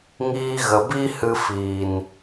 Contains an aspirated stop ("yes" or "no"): no